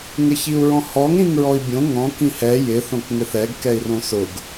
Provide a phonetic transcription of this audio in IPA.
ŋɪçiu̯ɹɔ̃hɔŋ ɾĩŋɹɔi̯bʲõ ŋɔ̃ kĩhɛ jɪ θõkŋɪθɛɡ kɛi̯rõsʊɡ

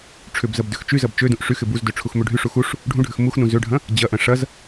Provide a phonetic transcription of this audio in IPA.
ʈ͡ʂʰʏbzɐb døxt͡ʃyzɐb t͡ʃødũʔ ʂyxɪ buzdø ʈ͡ʂʰuxmøɖʱyʂu xuʂ | ɖʱũɖʱʏx muxnũ zøɖʱɐ̃ | d͡ʑɐʔɐ̃ ʂɐz

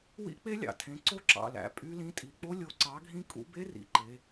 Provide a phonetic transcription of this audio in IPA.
wḭ˦˥k͡pe˦˥lʲɑ̰˩˧tʰẽ˩˧˩ ǀo˦˥ǁɑ̰˩˧˩læ̰˩˧ pʼy˦˥lĩ˦˥ tʼi˩˧˩k͡po˦˥ lʲo˧˩ǀɑ˨˥ɡʱĩ˦˥ kʼṵ˦˥ be˦˥rḭ˩˧˩ǃe˩˧

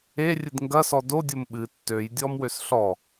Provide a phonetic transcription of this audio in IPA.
erʲɨd ŋɡɐsɔ dodʲom ɓɨ tːøjdʲɔmwøs ɬɔ

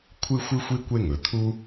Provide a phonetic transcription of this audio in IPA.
kʷʰɨ˥xʷɨ˥xʷi˥ kʷe˥ŋɵ˩t̪ʰu˥

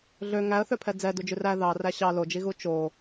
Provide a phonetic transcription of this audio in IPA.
ɮø ŋæə̯θøpʰɛ d͡zɛdud͡ʒʉr æ ðɑræ ɕɑ lod͡ʒiɣu t͡ʃo

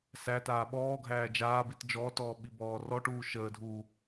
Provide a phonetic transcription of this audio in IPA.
sætaː ɓɔːɡʱæː d͡ʒaːbit d͡ʒɔːtɔː ɓibɔːrɔʈuː ʃəːdʱuː

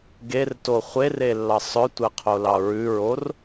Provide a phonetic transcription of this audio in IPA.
ɡerto χʷere lːɑsˤœtʷɛ qʰolɑɹʉɹor

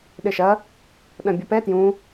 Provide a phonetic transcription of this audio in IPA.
ɗɘʃɐ | ɗɐ̃bʲɘpɛ tjũ

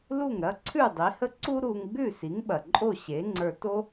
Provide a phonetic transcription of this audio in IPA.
lu˥˩ŋɾɐ˥ ǀʰʉ˥˩dˤi˩˥hə˥ ǀu˥ɾu˧ŋ ɡ͡bʉ˥˩si˩˥ŋɓɐ˩ ǃʼo˥˩ɕe˩˥ŋ͡ǀə˞˧to˥

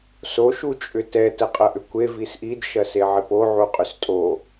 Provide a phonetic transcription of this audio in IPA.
so ʃut͡ʃʼʏtɛ təqʼɐʔʏkʷe visʔid ʃɐseʕipo ʕuqʼʏstʼo

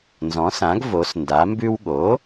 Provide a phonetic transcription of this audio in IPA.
nzɔ̃˩˥sã˩˥ɡ vo˩˥s nda˩˥mbʉ˥w ɠo˩˥

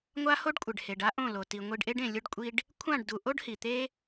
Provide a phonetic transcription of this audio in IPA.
ŋʷa˦ho˦ɖkʷʼɪ˨ɖhe˨ɖ a˦ʔõ˦˨lo˨ ti˨ŋʷi˧ɖʔe˦ɖẽ˨ lʲʊ˦ɖkʷʼi˦ɖ | kʷʰã˦˨ɖdu˨ ʔo˦ɖhi˨t̪e˦

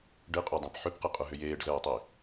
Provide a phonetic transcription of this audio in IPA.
ɖɪqʼodˤɛ̃p ħʏpqɪqʼʊɦʏ jeːɖzɛːtˤi

